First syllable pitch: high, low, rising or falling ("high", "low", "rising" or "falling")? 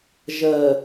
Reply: low